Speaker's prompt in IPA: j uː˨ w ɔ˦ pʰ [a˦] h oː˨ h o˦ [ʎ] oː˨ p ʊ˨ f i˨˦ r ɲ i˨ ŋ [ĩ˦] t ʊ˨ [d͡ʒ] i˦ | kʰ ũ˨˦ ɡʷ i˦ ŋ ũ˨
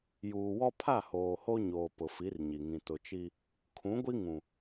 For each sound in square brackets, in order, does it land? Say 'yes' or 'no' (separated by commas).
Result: no, no, no, no